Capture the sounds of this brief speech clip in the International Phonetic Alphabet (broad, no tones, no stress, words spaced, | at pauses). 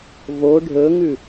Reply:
vo ɖʱɵŋʉ